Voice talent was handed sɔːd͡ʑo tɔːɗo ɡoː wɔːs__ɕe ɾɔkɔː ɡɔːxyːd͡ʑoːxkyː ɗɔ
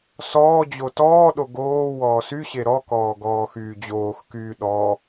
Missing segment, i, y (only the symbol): y